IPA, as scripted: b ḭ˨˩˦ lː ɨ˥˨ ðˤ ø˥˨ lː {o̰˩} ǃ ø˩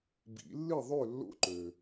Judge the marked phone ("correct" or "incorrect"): incorrect